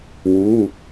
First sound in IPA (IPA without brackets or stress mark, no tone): w